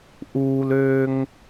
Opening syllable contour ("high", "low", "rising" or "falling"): high